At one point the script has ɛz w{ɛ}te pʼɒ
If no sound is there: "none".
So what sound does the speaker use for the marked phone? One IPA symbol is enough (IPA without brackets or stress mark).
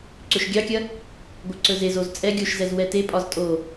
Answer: ɛ